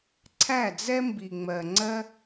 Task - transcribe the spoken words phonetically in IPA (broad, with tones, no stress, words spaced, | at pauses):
ǀʰæ˦˨d͡zɛ˦ mbi˨ŋ͡mɜ˨ŋ͡ǀɜ˦